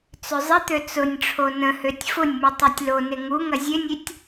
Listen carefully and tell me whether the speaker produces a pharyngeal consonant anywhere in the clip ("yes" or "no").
no